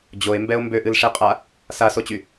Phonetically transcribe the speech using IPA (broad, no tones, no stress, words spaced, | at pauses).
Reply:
d͡ʑoe̯mbɛo̯ mbøʔɨlʂeqʼa | sasot͡ɕy